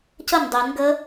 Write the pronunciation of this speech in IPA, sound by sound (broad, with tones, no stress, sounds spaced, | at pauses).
c ə˥˩ n dˤ e˨˩˦ n ɡ ə˦˥